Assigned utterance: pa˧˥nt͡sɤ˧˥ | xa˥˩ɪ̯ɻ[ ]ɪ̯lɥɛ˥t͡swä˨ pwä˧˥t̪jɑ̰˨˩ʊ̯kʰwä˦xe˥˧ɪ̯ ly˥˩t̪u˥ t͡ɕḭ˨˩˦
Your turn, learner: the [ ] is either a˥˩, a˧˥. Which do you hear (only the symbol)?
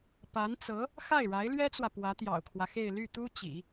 a˧˥